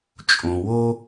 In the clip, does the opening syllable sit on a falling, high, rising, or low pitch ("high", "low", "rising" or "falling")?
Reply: low